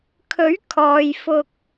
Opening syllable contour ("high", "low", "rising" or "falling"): rising